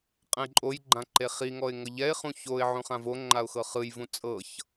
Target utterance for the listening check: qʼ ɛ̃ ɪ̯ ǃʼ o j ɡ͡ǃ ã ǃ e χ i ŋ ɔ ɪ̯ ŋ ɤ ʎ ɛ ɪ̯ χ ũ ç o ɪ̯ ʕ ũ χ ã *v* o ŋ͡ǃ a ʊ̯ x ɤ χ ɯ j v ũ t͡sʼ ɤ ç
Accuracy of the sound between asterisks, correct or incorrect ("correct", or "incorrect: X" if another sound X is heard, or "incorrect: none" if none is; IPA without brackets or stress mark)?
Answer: correct